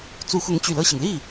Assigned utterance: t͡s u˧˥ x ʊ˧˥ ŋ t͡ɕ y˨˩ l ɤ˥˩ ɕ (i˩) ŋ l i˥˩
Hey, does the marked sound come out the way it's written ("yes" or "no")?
yes